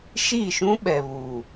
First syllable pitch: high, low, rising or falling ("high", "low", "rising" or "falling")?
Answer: falling